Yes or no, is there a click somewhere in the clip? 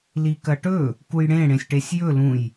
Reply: no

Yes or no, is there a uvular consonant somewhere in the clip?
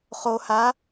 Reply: yes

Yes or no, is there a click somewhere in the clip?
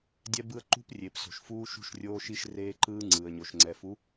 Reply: yes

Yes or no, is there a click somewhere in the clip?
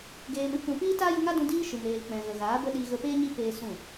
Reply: no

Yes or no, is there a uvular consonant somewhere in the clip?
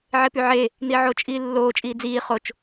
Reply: yes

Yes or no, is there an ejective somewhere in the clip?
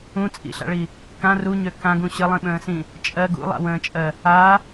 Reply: yes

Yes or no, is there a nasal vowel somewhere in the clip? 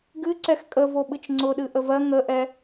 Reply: no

